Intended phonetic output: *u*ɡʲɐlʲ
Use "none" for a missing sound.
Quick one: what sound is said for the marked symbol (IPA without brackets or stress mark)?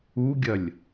u